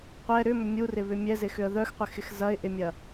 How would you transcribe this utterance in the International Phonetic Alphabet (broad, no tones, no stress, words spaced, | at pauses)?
qʷɛ ɾʏmʏ mʲurɪβʏ mʲɛzɪxʏə̯ ðœxqʷɪxɪx zɐɪ̯ʔɪmʲɐ